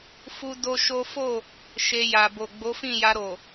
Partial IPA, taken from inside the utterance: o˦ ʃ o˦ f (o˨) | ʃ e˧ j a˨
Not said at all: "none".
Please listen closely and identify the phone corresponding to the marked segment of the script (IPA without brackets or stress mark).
o˦˨